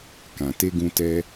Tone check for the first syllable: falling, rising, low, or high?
low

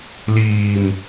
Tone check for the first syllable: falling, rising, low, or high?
low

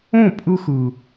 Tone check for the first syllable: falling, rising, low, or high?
falling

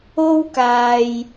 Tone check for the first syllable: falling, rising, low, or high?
high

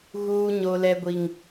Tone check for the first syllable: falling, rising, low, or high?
high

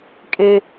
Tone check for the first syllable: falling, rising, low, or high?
high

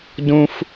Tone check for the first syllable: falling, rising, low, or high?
high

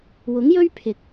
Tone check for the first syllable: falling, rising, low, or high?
rising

